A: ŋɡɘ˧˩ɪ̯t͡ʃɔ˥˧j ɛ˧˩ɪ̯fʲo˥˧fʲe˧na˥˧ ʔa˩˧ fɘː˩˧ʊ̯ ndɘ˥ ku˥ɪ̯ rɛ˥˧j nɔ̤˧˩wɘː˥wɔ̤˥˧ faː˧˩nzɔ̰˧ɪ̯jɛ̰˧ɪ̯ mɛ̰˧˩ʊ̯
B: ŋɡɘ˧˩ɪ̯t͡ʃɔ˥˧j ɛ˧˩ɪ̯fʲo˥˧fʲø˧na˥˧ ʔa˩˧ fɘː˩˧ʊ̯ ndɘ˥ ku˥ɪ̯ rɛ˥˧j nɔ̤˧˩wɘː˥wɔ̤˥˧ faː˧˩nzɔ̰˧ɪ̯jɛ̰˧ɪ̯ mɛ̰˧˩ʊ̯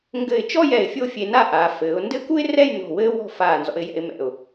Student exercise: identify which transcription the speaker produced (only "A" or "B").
A